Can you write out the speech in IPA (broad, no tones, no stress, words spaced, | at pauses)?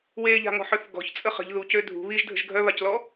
weʎa̤ŋɔ̤ħœθ ɡɔ̤çt͡sʼə χə̤ʎ ðucø dʱṳ βiʒdʱə̤ʒ ɡʱœβaclɔ